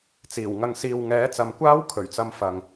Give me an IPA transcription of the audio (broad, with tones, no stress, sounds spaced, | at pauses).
t͡s iː˨˩ w ŋ ɐ˧ ŋ s iː˨ w ŋ ɛː˨˥ t͡s ɐ˨ m kʷ aː˥ w kʰ ɵ˨˩ ɥ t͡s ɐ˧ m f ɐ˨ ŋ